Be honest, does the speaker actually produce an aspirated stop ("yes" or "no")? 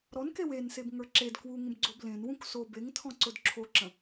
yes